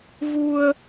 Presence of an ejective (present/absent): absent